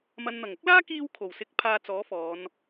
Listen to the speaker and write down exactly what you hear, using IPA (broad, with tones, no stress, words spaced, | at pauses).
mɐ˨nn̪ɐ˨˩ŋʊ˥k̚laː˥ kiː˧wkʰo˨˩wsɪ˨˥k̚ pʰaː˧t͡sɔː˨˥fɔː˨˧n